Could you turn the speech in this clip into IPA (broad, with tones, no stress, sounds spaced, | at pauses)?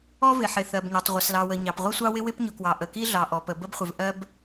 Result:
ɔ˥ v ɪ˩ ħ ɪ˩ θ ɜ˩ b ɲ ɔ˩ tˤ ʁʷ ə˩ s l ɑ˩ w ə˩ ɲ ɑ˩ p ʁʷ ɪ˥ sʷ ɑ˥ w ɪ˥ w ɪ˥ p ɲ ʊ˩ k w ɑ˩ ʔ ə˩ k i˥ ɮ ɑ˩ ʔ ɔ˩ p ə˩ b ə˥ b χʷ ɪ˩ v ʔ ɜ˥ b